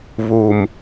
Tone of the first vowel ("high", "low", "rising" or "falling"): low